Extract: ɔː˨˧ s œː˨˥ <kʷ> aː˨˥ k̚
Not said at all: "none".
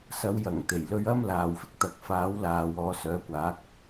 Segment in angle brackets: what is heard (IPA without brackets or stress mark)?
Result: kʷ